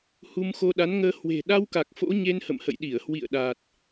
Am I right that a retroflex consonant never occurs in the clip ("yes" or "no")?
yes